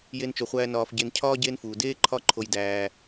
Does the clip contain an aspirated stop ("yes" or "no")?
yes